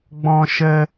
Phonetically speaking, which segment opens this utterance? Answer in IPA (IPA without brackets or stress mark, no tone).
ɡ͡b